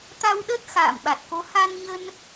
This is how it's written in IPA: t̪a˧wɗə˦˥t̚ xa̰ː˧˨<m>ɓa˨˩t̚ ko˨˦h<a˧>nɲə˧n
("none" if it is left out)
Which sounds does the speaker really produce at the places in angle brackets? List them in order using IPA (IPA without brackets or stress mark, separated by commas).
m, a˧